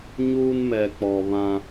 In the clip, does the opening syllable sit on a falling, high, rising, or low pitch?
high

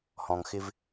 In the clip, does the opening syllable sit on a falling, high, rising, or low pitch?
low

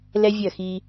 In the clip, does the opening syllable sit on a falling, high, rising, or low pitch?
high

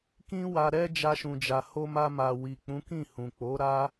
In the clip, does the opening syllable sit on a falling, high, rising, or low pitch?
high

